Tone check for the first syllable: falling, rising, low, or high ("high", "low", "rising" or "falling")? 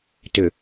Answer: low